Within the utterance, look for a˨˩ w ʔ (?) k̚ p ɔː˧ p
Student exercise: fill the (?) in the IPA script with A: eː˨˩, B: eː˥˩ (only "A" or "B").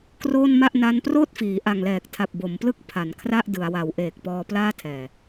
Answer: A